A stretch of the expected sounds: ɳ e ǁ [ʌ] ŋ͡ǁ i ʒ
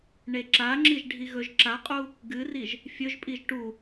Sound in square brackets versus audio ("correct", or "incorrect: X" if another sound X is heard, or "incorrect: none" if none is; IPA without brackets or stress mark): incorrect: a